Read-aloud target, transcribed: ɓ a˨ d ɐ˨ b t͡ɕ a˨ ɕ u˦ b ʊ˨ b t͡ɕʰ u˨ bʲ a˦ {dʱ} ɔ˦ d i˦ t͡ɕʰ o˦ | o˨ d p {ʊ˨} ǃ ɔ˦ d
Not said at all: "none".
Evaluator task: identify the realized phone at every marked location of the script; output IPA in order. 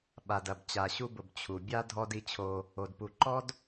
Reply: dʱ, u˨

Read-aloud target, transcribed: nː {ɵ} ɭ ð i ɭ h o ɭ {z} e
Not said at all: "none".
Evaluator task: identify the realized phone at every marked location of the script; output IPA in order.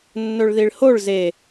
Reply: ɵ, z

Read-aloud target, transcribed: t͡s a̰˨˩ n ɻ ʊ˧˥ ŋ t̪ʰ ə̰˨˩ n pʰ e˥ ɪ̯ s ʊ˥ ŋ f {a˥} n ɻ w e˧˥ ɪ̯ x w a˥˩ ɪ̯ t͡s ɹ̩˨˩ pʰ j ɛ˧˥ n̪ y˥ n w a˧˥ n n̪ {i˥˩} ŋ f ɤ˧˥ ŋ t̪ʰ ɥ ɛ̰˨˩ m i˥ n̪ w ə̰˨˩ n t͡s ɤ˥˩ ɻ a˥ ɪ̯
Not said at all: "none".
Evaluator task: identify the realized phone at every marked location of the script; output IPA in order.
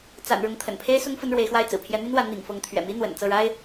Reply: ə˥, ḭ˨˩

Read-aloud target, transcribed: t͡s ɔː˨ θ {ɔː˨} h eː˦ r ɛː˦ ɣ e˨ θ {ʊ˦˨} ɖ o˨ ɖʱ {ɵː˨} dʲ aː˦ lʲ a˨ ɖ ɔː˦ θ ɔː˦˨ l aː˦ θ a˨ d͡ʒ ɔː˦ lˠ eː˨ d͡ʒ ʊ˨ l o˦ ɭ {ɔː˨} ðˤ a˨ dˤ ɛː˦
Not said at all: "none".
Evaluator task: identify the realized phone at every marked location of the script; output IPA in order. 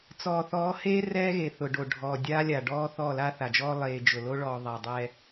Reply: ɔː˨˦, ʊ˨, ɔː˨, ɔː˨

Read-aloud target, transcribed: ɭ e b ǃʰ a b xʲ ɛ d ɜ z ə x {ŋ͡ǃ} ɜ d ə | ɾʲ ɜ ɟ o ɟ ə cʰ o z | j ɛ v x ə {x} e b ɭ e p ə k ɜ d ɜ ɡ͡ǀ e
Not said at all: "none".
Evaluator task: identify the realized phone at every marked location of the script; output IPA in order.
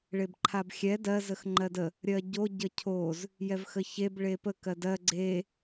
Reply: ŋ͡ǃ, ç

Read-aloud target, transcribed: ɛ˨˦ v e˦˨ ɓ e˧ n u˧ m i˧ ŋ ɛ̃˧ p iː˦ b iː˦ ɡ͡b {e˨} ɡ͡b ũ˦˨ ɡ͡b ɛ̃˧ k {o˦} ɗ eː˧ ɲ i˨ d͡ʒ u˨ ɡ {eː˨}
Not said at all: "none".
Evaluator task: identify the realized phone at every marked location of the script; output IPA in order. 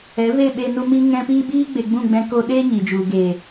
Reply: e˨, o˧, eː˨

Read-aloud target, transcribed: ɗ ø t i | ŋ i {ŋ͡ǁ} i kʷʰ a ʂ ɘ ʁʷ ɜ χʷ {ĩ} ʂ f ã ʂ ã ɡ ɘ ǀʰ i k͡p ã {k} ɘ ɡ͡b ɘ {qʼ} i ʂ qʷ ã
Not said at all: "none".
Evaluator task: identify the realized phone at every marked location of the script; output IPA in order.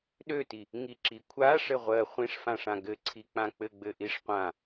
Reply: ǁ, ĩ, k͡p, ʔ

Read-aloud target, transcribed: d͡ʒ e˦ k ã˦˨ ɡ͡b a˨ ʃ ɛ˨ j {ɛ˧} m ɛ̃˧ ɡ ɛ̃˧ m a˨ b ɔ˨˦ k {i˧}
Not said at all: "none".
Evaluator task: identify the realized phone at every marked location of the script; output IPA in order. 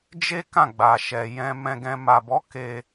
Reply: ɛ̃˧, e˧

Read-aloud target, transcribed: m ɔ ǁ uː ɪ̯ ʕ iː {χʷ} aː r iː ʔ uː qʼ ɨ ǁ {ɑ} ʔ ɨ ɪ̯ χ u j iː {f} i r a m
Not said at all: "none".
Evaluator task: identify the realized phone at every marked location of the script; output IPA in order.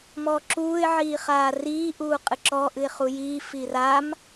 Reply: χ, ɔ, f

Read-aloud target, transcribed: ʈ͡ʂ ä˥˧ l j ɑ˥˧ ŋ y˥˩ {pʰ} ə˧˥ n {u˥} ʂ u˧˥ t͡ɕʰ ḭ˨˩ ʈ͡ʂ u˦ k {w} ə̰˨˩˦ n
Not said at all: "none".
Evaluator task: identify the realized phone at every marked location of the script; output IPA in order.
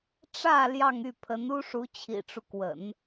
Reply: pʰ, u˥, w

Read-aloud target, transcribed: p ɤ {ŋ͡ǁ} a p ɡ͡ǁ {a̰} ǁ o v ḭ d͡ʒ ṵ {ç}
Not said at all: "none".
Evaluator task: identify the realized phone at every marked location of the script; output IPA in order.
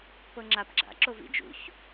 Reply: ŋ͡ǁ, a̰, ç

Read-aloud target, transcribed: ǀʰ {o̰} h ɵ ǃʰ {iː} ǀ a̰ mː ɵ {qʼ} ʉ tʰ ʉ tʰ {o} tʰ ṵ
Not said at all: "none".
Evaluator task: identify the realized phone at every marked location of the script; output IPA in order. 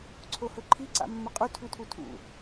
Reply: o, i, qʼ, u

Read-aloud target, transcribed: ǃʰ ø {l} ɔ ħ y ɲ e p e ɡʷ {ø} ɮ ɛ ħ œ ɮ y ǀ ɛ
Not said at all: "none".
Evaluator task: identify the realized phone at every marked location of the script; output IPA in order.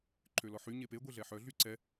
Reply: l, e

